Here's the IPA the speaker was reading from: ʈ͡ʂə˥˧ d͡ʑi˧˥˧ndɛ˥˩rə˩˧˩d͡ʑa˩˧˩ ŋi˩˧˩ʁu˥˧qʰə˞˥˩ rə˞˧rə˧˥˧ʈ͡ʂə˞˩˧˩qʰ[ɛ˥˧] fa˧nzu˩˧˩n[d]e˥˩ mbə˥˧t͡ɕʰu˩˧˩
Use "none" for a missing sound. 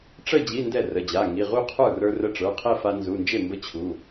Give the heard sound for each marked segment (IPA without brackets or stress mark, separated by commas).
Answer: ɛ˥˧, d͡ʒ